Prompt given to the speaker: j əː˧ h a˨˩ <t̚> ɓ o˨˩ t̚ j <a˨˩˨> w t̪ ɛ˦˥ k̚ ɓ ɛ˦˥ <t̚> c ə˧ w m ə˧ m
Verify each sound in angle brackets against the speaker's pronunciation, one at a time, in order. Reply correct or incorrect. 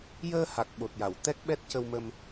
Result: incorrect, correct, correct

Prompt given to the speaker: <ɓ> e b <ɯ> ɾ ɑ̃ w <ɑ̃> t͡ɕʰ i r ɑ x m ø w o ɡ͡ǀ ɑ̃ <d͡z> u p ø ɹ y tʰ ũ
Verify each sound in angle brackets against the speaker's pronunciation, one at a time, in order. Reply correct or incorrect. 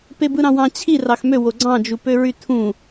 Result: incorrect, correct, correct, incorrect

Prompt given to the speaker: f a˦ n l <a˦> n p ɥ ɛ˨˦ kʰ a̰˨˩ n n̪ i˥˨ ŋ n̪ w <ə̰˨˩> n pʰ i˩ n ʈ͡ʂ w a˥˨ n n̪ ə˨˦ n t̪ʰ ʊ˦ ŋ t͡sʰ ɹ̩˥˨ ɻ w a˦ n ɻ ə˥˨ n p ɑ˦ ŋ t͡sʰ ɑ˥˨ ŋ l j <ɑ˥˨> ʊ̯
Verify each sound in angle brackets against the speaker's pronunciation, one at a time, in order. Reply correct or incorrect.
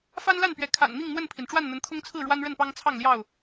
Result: incorrect, incorrect, correct

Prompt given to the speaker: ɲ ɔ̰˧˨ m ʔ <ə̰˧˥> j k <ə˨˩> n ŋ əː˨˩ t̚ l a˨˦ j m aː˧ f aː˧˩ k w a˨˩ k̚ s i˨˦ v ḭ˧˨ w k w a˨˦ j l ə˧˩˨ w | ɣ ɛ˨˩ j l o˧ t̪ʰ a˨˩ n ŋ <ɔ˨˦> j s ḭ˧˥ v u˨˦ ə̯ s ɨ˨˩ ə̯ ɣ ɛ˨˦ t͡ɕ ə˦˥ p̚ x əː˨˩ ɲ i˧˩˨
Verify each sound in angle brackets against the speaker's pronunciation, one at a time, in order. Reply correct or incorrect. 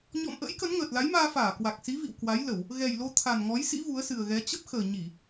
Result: correct, incorrect, correct

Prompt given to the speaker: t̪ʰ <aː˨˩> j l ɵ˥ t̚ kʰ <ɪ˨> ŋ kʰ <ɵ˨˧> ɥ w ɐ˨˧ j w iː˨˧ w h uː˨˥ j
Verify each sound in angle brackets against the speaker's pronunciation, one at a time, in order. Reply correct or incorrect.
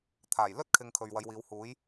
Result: correct, correct, incorrect

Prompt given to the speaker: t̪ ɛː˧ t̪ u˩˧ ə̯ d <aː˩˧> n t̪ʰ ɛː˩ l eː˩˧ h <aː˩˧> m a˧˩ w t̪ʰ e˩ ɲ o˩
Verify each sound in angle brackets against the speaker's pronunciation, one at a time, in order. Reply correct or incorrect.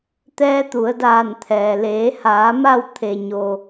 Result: incorrect, correct

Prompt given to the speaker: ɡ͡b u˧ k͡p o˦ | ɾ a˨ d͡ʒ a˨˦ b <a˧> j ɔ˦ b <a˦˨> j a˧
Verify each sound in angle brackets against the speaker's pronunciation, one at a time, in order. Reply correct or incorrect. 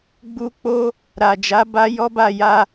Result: incorrect, correct

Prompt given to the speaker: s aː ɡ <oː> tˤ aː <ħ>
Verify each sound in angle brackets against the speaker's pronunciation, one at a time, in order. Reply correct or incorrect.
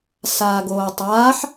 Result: correct, correct

